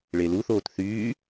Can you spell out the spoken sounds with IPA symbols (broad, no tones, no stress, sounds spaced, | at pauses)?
ɭ e l u θ oː t θ yː